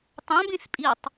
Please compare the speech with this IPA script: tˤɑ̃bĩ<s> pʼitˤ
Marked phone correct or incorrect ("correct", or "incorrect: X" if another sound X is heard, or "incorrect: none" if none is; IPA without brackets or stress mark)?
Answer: correct